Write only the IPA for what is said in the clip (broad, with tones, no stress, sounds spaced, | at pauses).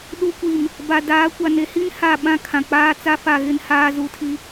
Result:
ɗ u˨ kʷ i˨ m | b a˨ d aː˨˦ kʷ a˨ n e˨ h i˦ n h a˦˨ ɓ ã˦ kʰ ã˨ k͡p aː˦ t͡s a˦ f a˦˨ ɣ ɪ˦ n h aː˦ z u˨ tʰ i˦